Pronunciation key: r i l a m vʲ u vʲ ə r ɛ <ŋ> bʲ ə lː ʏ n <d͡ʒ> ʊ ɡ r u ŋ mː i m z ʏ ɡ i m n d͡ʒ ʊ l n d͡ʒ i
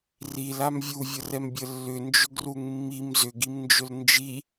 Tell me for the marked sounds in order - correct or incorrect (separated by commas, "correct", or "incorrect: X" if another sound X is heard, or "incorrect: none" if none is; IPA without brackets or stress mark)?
incorrect: m, correct